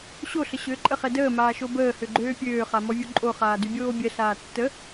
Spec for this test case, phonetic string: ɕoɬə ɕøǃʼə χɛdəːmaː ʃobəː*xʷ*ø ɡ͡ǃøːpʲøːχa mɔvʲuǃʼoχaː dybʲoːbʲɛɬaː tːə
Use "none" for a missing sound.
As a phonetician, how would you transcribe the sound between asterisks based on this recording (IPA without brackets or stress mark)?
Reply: h